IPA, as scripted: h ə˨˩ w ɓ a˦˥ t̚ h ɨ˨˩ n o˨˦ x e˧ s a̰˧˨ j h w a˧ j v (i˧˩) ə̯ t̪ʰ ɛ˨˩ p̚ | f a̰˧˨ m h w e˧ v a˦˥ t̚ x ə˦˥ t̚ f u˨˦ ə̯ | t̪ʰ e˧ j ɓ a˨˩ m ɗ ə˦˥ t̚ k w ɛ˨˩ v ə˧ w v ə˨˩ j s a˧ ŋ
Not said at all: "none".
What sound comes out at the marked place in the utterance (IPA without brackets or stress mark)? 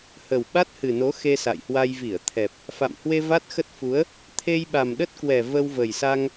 i˧˩